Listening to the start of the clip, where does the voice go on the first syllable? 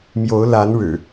rising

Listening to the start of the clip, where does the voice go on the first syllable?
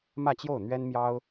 falling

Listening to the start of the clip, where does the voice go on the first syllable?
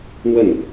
falling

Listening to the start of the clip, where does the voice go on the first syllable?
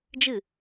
falling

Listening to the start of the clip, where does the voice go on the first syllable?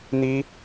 high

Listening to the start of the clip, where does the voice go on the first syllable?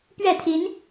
falling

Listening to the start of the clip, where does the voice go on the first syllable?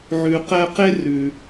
low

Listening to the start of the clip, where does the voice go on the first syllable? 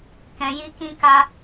low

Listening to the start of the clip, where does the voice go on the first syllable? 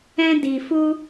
high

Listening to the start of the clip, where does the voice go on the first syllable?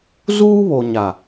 high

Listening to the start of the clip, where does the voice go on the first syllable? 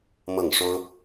falling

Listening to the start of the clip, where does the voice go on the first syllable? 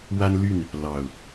high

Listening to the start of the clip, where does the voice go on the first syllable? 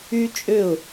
high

